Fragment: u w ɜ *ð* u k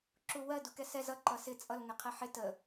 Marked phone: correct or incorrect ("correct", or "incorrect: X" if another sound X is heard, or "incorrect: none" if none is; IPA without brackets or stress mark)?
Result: incorrect: d